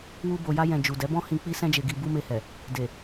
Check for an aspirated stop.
absent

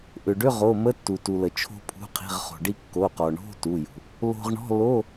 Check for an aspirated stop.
present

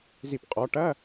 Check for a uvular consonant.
present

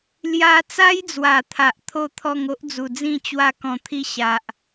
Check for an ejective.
absent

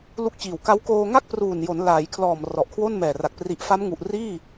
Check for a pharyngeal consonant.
absent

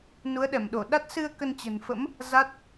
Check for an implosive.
present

